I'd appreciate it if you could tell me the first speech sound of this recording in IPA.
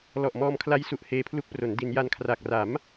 l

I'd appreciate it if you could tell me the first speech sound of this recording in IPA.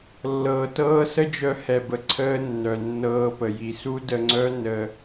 lː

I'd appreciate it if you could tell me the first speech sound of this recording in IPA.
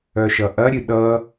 œ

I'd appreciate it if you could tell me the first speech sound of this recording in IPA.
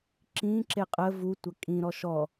ǁ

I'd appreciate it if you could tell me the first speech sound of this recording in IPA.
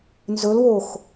n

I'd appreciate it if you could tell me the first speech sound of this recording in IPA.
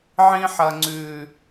ʕ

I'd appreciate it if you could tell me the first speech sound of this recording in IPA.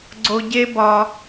ɡ͡ǀ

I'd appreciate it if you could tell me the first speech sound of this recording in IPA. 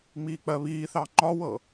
ŋ͡m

